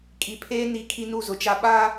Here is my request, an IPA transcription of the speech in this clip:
kʼ i˨ pʰ eː˦ n i˦ kʰ i˦ n u˦˨ z ʊ˨ t͡ʃ a˦ ɓ a˦

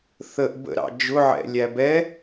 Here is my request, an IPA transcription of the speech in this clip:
θ ə ʔ b ə̰ ɾ ɑ̰ d͡ʒ ʊ ʕ ɛ̰ lʲ æ b ɛ

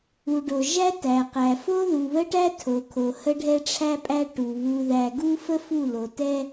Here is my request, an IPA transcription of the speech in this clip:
u˨ ɖ o˨ ʒ æ˦ t æ˨ q æ˨ f o˦ ð u˨ β ə˦ ʈ æ˦ tʰ o˨ kʰ o˨ h ə˦ ɖʱ ɛ˦ ʈ͡ʂʰ æ˦ pʼ æ˦ ʈ u˨ β u˨ ð æ˨ ɡ u˦ f ə˦ f u˦˨ l o˨ t ɛ˦

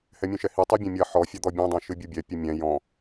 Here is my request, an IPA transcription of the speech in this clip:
h ɛ mʲ õ ʃ ɛ h i tˤ i bʲ ɛ̃ mʲ ɐ ħ ɔ fʲ a d̪ ɔ bʲ õ dˤ õ ʃ ɨ bʲ u bʲ ɛ pʲ ɘ mʲ ɛ̃ j ɔ̃

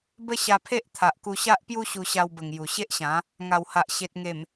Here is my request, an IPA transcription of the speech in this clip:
b ə˦ ɕ a˧ pʰ e˦ ʔ t̪ʰ a˨ ʔ k u˧ ɕ a˦ ʔ p j u˦ ɕ u˧ ɕ a˧ w b ə˨˩ ŋ j u˨˩ ɕ e˦ ʔ ɕ ã˨˦ | ŋ a˨˩ w h a˨ ʔ ɕ e˨ t̚ ŋ e˨˩ m

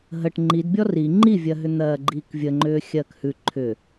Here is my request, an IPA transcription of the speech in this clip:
ɦ ə ʈ ŋ͡ǃ i d bʲ ɔ r i ŋ͡ǃ i vʲ ɜ ɦ ʏ n̪ ɜː ɡ͡ǃ iː k vʲ ə ŋ͡ǃ ʏː xʲ ɜː k h ʉ ǃʰ ʏ

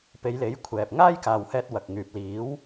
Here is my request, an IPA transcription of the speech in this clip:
p e˨˧ j l e˨˥ j kʷʰ ɛː˨ p̚ ŋ aː˥ j k aː˨ w h ɛː˧ t̚ w ɐ˨ k̚ ŋ yː˨ p̚ l iː˨˥ w

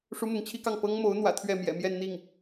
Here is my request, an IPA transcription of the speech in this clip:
ʂ u˥ m ʊ˧˥ ŋ t͡ɕʰ i˥ k ɑ˥˩ ŋ p ɤ˥ ŋ m o˧˥ ʊ̯ n̪ w ä̰˨˩ t̪ʰ ɥ ɛ˥˩ m j ɛ̰˨˩ m j ɛ˥˧ n n̪ i˥˩ ŋ

